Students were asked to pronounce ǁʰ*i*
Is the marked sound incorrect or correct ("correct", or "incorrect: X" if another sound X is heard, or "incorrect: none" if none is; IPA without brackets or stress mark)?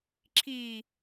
correct